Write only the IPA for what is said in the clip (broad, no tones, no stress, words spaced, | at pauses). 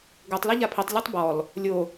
ɡotˤ lɛʎapʰitˤ lʲɐtˤbɔl | lʲo